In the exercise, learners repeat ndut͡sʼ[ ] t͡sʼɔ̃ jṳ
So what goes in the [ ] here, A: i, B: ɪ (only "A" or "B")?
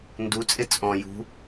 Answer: B